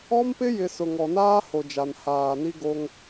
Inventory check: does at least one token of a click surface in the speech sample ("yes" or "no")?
no